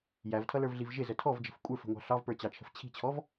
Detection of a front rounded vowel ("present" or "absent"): absent